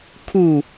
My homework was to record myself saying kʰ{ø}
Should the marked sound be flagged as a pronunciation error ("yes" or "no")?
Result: yes